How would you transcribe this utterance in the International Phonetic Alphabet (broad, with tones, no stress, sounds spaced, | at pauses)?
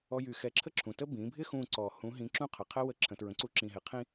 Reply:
ɔ˧ j y˧˩ x ɛ˧ ǁʰ ə˥ ǁʰ ũ˩ t ə˥ b ĩ˩˧ bʱ ɪ˥ x ũ˧˩ ǀ ɔ˩ h ũ˧˥ ɦ ĩ˧˥ ǁ ũ˥ qʰ ə˩˧ qʰ ɛ˥ w ə˧˥ ǁʰ ə̃˩ t ɹ ə̃˩˧ ǀ u˧˥ ǁ ĩ˧˩ ɦ ɪ˧˩ qʰ ĩ˥